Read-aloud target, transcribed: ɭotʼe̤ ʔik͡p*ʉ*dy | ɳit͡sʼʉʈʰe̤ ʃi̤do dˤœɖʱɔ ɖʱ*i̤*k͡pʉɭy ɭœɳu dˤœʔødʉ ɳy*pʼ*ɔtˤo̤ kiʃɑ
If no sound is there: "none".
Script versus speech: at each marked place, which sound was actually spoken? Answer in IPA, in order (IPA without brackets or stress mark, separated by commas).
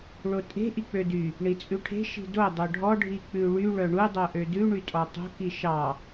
ø, i, tʼ